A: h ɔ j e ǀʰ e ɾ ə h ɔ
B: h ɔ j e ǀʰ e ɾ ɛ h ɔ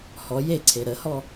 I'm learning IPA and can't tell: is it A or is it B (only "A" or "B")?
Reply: A